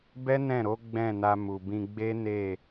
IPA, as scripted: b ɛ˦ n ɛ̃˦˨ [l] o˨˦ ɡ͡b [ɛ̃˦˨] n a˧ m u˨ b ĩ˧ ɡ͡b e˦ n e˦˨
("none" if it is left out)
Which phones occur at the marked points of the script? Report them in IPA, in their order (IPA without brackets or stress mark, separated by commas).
ɾ, ɛ̃˦˨